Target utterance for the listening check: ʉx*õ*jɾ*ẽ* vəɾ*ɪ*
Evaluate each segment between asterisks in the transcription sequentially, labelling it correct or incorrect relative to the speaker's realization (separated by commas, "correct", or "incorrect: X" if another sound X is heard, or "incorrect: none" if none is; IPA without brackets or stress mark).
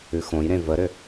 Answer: correct, correct, incorrect: ʏ